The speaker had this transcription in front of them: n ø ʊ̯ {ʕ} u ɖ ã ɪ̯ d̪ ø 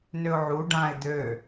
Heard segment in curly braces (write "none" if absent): ʕ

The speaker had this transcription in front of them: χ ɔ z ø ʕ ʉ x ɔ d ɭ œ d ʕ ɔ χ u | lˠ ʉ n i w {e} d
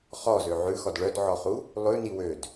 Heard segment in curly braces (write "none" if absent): ø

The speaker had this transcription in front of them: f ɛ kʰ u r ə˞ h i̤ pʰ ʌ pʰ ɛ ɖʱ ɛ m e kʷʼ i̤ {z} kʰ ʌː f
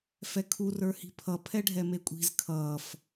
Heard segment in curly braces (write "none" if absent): z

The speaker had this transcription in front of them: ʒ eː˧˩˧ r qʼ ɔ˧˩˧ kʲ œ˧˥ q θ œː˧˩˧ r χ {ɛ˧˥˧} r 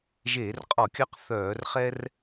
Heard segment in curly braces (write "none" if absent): ɛ˥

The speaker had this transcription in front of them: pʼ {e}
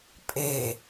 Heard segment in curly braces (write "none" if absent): e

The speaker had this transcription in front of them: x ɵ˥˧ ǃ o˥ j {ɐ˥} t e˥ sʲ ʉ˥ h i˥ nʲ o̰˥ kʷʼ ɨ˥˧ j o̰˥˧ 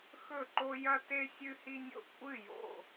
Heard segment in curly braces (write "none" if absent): ɐ˥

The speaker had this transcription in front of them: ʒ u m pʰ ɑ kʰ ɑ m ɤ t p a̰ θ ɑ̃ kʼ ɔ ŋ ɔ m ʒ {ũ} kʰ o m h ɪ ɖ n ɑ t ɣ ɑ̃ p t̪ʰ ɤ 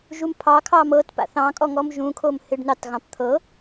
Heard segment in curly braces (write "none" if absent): ũ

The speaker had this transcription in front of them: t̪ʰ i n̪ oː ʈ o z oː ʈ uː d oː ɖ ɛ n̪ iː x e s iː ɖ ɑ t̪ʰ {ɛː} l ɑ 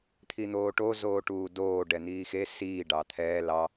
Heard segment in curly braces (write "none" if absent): ɛː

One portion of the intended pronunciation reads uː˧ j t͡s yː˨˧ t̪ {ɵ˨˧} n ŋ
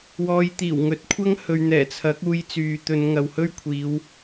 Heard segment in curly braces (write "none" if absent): ɵ˨˧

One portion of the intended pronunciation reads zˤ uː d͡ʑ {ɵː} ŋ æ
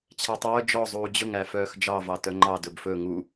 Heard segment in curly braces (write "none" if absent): ɵ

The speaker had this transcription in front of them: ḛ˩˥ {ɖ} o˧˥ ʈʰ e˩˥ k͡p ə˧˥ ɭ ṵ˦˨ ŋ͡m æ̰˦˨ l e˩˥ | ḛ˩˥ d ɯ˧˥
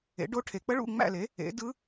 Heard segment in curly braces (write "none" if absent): ɖ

